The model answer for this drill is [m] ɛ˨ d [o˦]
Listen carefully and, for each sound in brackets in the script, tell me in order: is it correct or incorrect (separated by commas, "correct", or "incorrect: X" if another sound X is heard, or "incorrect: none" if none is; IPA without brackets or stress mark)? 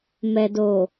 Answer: correct, incorrect: o˨